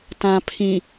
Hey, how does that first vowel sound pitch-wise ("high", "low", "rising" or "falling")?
low